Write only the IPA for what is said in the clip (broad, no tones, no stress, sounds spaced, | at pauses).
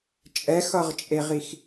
t͡ʃʼ ɛ x ʌ ʁ t͡ʃʼ e ʁ i x